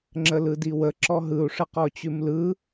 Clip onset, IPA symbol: ŋ͡ǁ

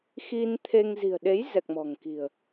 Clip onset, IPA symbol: x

